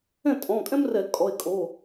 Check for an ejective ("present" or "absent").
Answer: present